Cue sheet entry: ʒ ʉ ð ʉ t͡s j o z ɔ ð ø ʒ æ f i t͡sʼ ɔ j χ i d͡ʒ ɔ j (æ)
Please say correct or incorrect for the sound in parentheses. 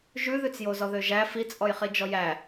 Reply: correct